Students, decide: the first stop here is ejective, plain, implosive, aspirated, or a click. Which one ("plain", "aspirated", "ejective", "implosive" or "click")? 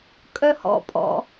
ejective